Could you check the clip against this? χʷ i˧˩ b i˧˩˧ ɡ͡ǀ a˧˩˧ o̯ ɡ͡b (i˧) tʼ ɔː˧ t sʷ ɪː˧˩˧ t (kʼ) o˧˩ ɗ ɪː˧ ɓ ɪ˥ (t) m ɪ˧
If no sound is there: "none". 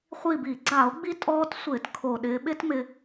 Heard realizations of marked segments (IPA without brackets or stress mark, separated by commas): i˧, kʰ, t